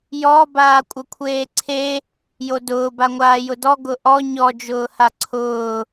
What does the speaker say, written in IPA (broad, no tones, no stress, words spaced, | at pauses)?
jɔ baːkʷʼəkʷʰeːǀʰe | jodʊː baŋʷaːjʊdɔ ɡʊʔɔ ɲɔ d͡ʒʊːhaǀʰʊː